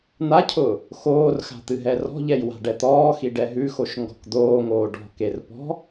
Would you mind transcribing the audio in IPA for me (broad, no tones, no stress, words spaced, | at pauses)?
n̪acʰʊː | xoːrxa̤ t̪ɨɦɛrɔ̤ʎɛj wa̤ɖɛt̪ɔːxi ɖɛɦʉxoʃ ŋɡɔ̤kd̪oːŋoː ɖɔ̤ker pɔ̤